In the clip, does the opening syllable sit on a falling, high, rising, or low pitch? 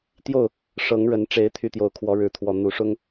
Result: falling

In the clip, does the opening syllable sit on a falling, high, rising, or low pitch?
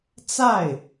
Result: falling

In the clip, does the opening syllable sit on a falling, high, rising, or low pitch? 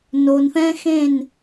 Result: low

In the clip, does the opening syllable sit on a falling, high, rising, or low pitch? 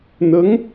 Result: rising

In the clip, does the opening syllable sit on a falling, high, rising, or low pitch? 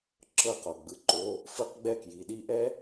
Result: falling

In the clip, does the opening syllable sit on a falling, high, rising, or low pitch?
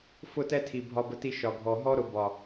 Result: high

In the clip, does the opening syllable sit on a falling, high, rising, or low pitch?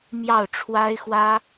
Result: falling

